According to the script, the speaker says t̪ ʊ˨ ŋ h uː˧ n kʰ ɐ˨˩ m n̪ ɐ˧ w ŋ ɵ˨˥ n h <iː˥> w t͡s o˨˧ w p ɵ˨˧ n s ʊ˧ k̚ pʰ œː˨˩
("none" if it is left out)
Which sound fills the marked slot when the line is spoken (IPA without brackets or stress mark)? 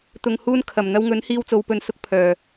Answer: iː˧